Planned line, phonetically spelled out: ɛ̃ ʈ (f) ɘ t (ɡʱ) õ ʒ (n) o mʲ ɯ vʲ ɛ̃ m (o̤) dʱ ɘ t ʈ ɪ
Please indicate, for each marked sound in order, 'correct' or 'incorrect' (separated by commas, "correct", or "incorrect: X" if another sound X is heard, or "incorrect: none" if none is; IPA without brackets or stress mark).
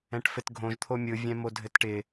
correct, correct, incorrect: t̪ʰ, incorrect: o